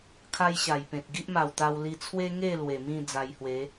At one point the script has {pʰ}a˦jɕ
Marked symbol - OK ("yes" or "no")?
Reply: no